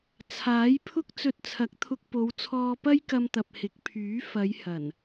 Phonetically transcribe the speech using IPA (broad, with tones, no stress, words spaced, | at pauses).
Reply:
t͡sʰaː˨˥jpʰʊ˥k̚ t͡sɵ˧t̚t͡sʰɐ˨˥k̚t̪ʰʊ˧k̚po˨˧w t͡sʰɔː˧pɐ˥jkɐ˧mt̪ɐ˨p̚ hɪ˨˥k̚pʰyː˨˥ fɐ˨˧j hɐ˨˩n